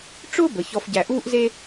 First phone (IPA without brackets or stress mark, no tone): ʈ͡ʂ